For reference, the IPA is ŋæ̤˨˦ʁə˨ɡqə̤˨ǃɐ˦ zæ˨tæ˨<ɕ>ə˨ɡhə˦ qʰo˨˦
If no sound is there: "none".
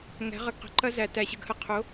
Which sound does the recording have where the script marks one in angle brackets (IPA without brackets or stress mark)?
ɕ